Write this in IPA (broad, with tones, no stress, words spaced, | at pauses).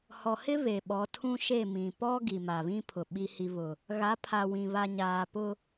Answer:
hɔ˨hɪ˦ βe˨ɓɔ˨˦tʰũ˦ʃe˦˨ mĩ˨ pɔ˦ ɡi˨ma˨βĩ˦pʰʊ˨ ɓi˦hi˦βʊ˦ | ɣa˨˦pʰa˨wĩ˨ βa˨ɲaː˨pʊ˦